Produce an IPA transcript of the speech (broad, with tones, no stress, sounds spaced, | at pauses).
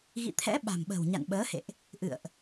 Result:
ɣ ḭ˧˨ t̪ʰ ɛ̰˧˥ ɓ a̤˨˩ m ɓ ə̤˨˩ w ɲ a̰˧˨ n ɓ əː˨˦ h ḛ˧˨ ʔ | ʔ ɨ̰˧˨ ə̯ ʔ